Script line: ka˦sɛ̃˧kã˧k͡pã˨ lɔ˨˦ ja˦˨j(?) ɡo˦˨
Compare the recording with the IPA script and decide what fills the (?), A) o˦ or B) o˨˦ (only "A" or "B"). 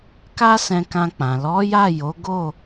B